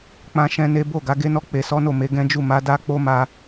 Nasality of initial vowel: nasal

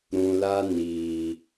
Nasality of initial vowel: nasal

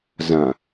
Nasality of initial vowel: nasal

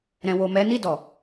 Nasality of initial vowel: nasal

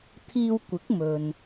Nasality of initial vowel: oral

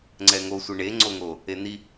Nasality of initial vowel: oral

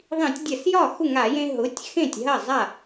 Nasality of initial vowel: nasal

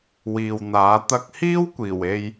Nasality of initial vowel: oral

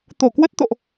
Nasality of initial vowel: oral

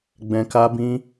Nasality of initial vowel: nasal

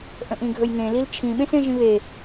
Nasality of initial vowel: nasal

